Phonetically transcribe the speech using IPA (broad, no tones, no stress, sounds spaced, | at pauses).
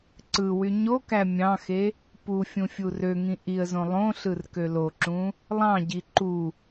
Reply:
ǀ ɯ w y ɲ o k æ mʲ ɑ̃ x e | p u fʲ ũ fʲ u r ø ŋ ĩ ʔ i ə̯ z õ lˠ õ ɬ ɯ r k ø l o ǁ ũ | lˠ ɑ̃ ɟ i ǃ u